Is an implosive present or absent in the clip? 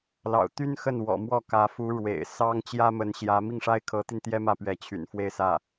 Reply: absent